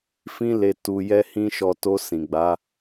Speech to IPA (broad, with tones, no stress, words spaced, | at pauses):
fĩ˧le˨tu˨jɛ˧ hĩ˦ʃɔ˧ to˧ sĩ˨ɡ͡ba˨˦